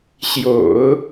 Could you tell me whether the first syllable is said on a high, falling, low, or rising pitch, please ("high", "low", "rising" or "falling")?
low